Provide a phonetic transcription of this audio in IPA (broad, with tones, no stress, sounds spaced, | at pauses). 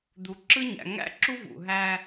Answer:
d̪ u˨ ǁ ɯ˦ ɲ æ̰˨ ŋ æ̰˦ ǁ u˦ v ṵ˨ ɦ æ˦